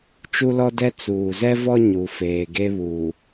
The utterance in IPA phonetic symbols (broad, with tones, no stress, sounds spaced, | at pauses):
t͡ʃ u˦ l ɔ˦ d ɛ˦ t͡s uː˨ z ɛ˦ v ɔ˦ ɲ u˨ f eː˨ ɡ e˦ β uː˨